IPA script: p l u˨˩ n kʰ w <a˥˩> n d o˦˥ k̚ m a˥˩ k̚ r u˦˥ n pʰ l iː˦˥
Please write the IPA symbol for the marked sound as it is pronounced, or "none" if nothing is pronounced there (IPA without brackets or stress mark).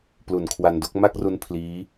a˧